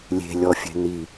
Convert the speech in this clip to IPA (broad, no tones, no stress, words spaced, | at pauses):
lʲe̤ lʲɔfʲɛ̤ni